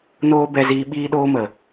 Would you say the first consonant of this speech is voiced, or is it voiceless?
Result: voiced